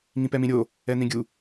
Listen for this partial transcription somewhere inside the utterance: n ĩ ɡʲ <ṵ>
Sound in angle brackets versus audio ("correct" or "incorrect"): incorrect